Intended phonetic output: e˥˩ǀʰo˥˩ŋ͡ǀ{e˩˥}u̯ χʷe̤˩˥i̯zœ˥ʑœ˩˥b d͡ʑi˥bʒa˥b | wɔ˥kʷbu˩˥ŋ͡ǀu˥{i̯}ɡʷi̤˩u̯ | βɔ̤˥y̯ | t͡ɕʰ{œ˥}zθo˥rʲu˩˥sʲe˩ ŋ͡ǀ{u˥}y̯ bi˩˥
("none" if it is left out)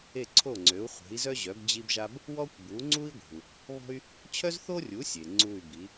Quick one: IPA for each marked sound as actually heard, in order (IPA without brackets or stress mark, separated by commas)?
ø˩˥, i̯, œ˥, u˥˩